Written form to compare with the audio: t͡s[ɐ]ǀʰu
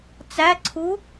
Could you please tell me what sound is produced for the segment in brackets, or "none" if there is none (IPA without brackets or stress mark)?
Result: æ